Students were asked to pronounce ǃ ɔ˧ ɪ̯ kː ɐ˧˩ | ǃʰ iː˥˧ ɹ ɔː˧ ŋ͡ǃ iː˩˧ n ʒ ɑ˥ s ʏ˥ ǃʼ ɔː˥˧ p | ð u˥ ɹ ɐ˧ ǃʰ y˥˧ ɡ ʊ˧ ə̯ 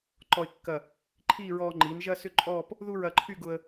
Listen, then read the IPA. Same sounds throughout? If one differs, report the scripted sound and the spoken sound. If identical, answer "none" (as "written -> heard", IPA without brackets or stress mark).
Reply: ɑ˥ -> ɐ˥